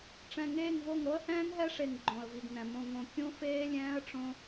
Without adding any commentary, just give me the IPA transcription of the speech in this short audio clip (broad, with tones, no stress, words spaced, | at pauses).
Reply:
ʈ͡ʂɛ̃˨ŋeː˦˨ŋvo˦˨ŋ ɾo˦ə̯hɛ̃ː˦ŋɦɛ˦ʂe˨ŋ ɡ͡ǃõ˨ə̯vi˨ɡnɛ̃˨ mõ˨ŋõ˨ kʲũ˦ feː˦lʲɛ̃ː˦ə̯ʈ͡ʂõ˦